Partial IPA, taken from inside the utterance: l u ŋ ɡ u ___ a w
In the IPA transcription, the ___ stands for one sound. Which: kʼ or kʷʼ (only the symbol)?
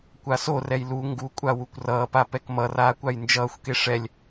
kʷʼ